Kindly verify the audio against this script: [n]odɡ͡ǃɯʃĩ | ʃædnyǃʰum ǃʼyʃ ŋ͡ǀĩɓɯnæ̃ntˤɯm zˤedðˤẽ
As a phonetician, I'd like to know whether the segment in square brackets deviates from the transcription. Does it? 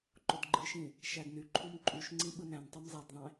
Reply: yes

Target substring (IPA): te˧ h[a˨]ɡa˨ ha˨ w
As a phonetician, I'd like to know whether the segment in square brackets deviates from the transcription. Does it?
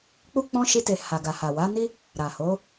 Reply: no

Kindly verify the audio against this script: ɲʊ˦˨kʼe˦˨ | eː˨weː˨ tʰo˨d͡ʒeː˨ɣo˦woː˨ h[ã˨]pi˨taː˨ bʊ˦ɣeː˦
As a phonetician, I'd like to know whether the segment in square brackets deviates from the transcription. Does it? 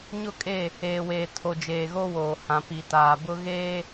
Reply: no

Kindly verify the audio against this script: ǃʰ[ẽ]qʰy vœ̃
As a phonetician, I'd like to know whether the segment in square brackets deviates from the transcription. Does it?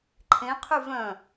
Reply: no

